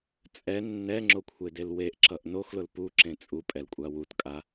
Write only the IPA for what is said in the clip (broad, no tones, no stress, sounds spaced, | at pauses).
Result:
t͡sʼ ɛ nː ɛ ŋ͡ǁ o kʷʰ e d e l w e ʔ ǁ ʌ ʔ n o x l ʊ l p u ǁ ẽ t͡sʼ u pʼ ɛ l kʷʼ a w u t kʼ a